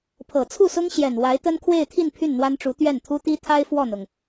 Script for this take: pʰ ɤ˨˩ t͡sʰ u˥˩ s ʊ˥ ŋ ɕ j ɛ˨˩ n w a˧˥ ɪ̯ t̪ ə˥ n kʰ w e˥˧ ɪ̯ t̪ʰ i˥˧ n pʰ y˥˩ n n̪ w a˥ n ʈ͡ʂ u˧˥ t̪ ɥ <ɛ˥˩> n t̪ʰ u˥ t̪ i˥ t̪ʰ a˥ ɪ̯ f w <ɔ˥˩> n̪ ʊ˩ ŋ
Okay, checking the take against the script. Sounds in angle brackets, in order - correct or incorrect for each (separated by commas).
correct, correct